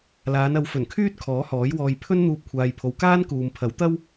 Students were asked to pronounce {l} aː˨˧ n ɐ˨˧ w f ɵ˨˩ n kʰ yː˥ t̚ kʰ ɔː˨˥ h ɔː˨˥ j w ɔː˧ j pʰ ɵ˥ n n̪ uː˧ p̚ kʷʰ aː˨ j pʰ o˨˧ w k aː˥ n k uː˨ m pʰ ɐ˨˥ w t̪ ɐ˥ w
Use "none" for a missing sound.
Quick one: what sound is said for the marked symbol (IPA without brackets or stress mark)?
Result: l